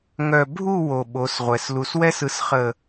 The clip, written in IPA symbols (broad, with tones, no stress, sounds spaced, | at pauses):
ŋ œ˨ bʱ u˦˨ w o˨ ɓ o˨˦ s ʁʷ ɛ˨ s l u˨ s w ɛ˦ s ɯ˨ s χ ə˨